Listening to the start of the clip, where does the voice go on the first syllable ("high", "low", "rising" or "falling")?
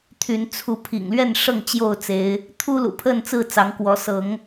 rising